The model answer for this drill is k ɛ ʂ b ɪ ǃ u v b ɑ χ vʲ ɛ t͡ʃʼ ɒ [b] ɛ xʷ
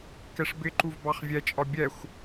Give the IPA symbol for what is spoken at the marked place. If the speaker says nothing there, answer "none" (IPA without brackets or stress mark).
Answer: bʲ